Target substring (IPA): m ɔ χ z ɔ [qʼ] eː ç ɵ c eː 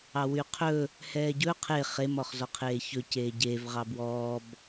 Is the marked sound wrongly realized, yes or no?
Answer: yes